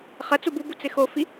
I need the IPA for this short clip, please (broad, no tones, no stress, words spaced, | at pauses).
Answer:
χɐ t͡sububu t͡sɪxofi